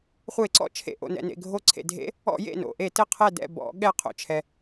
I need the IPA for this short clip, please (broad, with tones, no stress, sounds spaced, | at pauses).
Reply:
χʷ e˧˩˧ ǀ ɔ̰˧˩˧ t͡ʃʰ ḛ˩ ʔ o̰˩ n ɛ̰˩ n ḛ˩ ɡʱ o˧˩ ǀʰ ḛ˩ dʱ ḛ˧˥˧ | ɔ̰˧˩˧ j ḛ˧˩ n o̰˩ ʔ e˧˩˧ t ɘ˧˩ qʰ ɛ˧˩ d ɛ̰˧˩ b ɔ̰˧˩˧ ɠ ɛ˧˩ qʰ o̰˩ t͡ʃʰ ɛ˩